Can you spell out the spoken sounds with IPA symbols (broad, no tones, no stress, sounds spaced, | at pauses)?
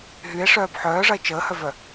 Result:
ɦ y e̯ ʂ œː b ħ œː ʐ ɐ e̯ t͡ʃ əː h œ v œ